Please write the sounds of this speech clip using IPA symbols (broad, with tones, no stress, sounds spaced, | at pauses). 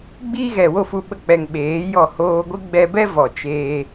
ɡ͡b iː˦ ɣ ɛ˨ w o˦˨ f u˧ ɓ ə˧ k͡p ɛ˨ ŋ ɓ eː˨˦ j ɔ˦˨ h oː˧ ɡʷ ɨ˦ ɡ͡b ɛ˧ b ɛ˦ v ɔ˨ t͡ʃ eː˧